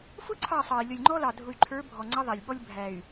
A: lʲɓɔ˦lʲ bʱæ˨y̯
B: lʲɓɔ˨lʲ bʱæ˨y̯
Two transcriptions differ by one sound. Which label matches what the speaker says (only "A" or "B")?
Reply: A